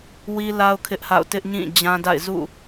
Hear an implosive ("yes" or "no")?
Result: no